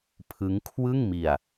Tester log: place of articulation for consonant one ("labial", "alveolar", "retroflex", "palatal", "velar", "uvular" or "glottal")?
labial